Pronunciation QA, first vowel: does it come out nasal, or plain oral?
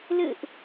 oral